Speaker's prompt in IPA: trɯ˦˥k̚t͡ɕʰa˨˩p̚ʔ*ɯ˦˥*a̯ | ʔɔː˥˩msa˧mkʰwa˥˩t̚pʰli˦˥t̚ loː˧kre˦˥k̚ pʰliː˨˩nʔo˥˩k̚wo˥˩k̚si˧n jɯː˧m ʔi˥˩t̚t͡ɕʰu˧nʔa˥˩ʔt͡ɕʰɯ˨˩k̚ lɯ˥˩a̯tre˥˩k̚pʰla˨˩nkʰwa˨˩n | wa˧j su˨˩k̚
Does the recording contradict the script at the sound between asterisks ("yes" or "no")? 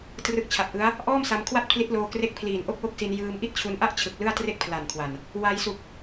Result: no